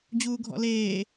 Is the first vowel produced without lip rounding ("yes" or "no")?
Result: no